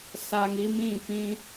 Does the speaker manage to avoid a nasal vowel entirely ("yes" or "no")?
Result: no